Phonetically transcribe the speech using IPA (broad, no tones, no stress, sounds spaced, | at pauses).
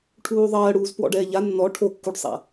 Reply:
ʈʰ uː ðˤ ɜː ɽ uː z p w ɔ̰ ɖ ɛː ʎ a nː ɔ ʈʰ o kː u ɖ sˤ a̰